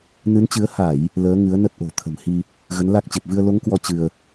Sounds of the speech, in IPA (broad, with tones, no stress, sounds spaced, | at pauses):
n ɨ˨˦ n t͡ɕ ɨ˨˦ ə̯ h a˧˩˨ j | l əː˨˦ ŋ ɨ˨˦ ə̯ n ə˦˥ t̚ ʔ o̤˨˩ t̪ʰ ə̤˨˩ m h i˧ | ɣ ə˨˦ n l a˦˥ k̚ t͡ɕ e˨˩ p̚ v ɨ˧ ə̯ l o˨˦ ŋ k w ɔ˨˦ t͡ɕ ɨ˧ ə̯